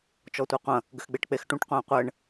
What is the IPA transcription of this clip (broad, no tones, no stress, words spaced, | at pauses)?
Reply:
t͡ʃɔtʷeqʷɐ̃ | ɡɘxɡ͡beʈk͡pexʈũʈ qʷɐ̃ːqʷɘːɳ